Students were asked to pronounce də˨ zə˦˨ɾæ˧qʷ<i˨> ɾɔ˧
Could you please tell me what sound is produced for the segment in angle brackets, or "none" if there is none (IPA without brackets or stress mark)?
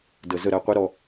i˦